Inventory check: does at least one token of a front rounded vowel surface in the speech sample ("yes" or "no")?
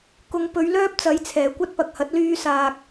yes